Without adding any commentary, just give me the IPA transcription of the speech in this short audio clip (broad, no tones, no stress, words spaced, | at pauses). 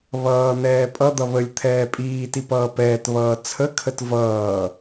βʌː n̪ɛːpʼʌd̪ʌ βəlʲ t̪ʰɛːpʼiːti pʌːpɛːtβʌː t͡sʰəkʰət vʌː